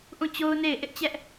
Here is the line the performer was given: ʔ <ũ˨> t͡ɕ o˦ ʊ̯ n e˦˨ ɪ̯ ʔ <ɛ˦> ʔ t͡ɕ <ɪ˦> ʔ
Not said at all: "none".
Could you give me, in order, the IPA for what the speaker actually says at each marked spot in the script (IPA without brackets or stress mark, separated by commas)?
ũ˦˨, ɪ˦, ɛ˦